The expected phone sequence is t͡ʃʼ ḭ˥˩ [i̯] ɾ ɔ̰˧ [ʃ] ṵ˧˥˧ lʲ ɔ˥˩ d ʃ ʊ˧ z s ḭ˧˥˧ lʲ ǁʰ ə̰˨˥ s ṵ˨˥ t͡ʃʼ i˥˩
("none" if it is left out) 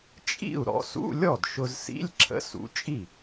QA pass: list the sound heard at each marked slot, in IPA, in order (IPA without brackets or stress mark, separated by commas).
u̯, s